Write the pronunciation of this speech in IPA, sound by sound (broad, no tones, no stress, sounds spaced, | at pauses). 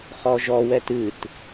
χ ɔ ʒ ɔ w ɛ t ɨ t